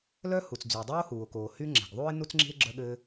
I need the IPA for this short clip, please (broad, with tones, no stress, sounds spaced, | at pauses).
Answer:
l œ˥ h u˩ t͡s d͡z y˩ o̯ dˤ oː˥ h uː˩ o̯ k oː˩ h y˥ ŋ͡ǁ ɛ̤˩ ɡ ðˤ uː˥ e̯ n u˥ t͡s ŋ͡ǁ i̤˥ e̯ ɡ͡ǁ œ˥ ɠ ɘː˥